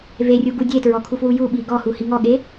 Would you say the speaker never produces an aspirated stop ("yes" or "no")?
no